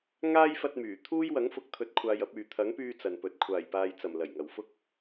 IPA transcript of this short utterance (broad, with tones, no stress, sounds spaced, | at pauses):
ŋ aː˥ j f ɐ˧ t̚ m yː˨˩ t̪ʰ uː˥ j w ɐ˨˥ ŋ f ʊ˨˥ k̚ t̪ʰ ɵ˨ t̚ kʷʰ aː˧ j ɐ˨˥ p̚ yː˨ t̪ʰ ɐ˨˥ ŋ p yː˧ t͡s ɐ˨ n p ɵ˨ t̚ kʷʰ aː˨˩ j p aː˨ j t͡s ɐ˨˩ m l ɐ˨˩ j ŋ ɐ˨˩ w f ʊ˧ k̚